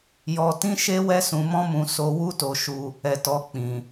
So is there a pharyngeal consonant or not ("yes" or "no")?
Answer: no